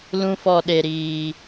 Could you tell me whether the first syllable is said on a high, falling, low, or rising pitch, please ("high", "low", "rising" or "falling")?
high